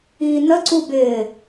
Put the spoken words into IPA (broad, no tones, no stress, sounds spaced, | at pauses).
iː n̪ ə ǀ u b ɪ